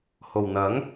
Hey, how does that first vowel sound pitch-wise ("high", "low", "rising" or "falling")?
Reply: low